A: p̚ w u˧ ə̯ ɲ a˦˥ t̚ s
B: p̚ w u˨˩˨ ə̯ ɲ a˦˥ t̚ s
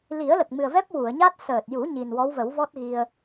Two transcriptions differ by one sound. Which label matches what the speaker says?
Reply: B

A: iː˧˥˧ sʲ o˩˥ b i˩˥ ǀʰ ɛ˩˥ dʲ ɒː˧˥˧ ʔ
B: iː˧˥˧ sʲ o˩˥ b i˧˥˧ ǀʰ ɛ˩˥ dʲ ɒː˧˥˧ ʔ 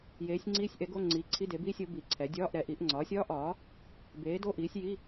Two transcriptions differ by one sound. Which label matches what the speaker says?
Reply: A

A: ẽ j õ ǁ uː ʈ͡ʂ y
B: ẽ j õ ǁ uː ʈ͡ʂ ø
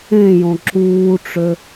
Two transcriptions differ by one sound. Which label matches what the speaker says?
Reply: B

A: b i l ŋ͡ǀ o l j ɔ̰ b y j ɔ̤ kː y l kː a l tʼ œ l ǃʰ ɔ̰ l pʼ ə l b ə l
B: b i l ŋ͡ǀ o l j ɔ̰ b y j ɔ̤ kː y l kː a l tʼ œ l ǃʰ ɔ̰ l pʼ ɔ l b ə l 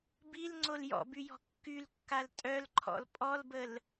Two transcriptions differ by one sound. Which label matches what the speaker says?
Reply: B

